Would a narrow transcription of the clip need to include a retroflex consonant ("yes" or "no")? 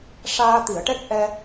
yes